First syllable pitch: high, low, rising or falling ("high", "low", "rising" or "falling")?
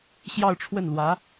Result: falling